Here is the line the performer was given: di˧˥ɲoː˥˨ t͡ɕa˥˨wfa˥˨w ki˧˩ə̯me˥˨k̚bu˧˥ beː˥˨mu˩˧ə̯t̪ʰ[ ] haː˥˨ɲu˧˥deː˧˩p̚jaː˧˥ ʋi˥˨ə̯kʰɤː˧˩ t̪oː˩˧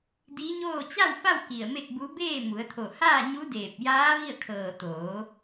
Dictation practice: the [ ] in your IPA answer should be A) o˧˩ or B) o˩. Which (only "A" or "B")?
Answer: A